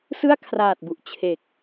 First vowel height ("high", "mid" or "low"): high